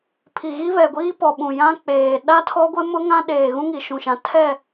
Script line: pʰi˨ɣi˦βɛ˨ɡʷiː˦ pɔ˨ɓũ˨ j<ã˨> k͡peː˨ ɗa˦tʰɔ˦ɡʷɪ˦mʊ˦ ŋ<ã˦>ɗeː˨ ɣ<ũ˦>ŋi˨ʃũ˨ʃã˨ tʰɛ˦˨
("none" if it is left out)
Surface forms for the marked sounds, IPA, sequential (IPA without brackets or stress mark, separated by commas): ã˦, ã˦, ũ˦